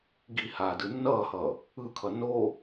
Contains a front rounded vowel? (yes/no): no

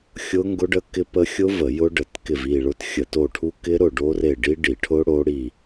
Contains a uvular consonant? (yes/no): no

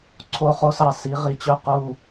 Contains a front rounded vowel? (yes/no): yes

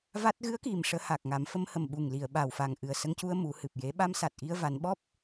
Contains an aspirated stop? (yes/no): no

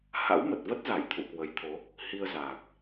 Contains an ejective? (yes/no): no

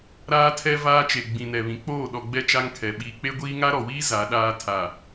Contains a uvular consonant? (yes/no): no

